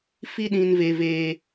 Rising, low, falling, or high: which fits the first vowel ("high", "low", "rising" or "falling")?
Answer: high